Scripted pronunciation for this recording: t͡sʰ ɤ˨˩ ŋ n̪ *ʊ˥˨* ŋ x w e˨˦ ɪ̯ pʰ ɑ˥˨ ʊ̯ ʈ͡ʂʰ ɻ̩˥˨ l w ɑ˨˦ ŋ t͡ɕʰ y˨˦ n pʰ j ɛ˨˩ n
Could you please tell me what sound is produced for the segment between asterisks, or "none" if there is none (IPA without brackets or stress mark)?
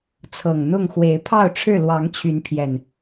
ʊ˥˨